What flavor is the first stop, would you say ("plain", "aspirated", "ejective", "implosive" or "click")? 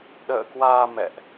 implosive